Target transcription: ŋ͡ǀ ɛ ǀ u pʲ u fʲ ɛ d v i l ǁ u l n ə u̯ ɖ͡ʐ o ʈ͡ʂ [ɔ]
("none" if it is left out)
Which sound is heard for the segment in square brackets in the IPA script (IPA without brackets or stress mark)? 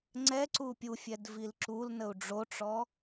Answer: ɔ